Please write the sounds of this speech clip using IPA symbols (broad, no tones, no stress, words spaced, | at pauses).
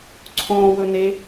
ǀʰõːwɵ ne